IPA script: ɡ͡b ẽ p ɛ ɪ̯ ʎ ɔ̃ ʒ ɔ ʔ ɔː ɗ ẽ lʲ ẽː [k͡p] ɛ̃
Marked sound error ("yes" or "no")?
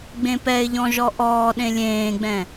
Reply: yes